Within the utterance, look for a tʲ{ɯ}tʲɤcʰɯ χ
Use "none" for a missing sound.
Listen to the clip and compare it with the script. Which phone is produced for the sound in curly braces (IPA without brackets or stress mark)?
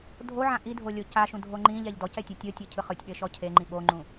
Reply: ɤ